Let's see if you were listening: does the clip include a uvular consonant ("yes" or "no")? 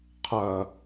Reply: yes